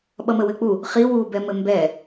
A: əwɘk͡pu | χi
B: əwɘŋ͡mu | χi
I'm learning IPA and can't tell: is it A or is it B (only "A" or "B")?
A